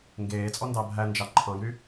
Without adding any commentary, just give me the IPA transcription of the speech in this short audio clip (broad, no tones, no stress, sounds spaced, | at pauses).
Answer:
ŋ ɡ eː t͡sʼ ɔ n d ɑ bʱ æ n d͡ʒ ɑ ǃʰ ɑ̃ ɡ ɾ y